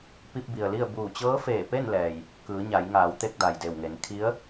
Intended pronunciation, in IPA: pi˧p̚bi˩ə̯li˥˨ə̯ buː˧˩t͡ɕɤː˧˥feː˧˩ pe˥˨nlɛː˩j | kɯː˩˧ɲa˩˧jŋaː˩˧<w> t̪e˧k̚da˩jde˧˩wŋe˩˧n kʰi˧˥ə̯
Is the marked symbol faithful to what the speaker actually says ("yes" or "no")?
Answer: yes